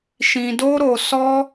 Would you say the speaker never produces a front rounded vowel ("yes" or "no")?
yes